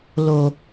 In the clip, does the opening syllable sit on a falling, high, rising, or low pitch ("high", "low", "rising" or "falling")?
low